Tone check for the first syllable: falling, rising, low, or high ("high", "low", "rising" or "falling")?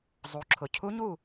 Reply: rising